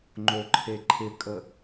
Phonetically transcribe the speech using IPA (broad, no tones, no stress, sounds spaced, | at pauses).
ŋ͡ǃ o ǃʰ e ǃʰ ɪ kʼ ə